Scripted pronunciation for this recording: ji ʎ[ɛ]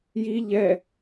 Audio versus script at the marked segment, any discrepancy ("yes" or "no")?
no